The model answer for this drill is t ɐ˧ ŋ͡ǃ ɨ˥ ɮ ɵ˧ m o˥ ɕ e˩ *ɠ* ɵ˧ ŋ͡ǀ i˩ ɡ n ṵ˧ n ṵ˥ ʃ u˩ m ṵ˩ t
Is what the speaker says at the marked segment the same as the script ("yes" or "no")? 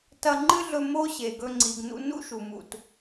no